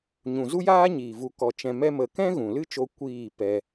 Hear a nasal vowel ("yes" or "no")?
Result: yes